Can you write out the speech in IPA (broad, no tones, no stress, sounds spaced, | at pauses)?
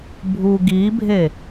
bʱ u ɡ i bʱ e